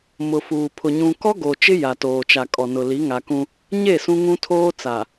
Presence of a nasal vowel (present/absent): present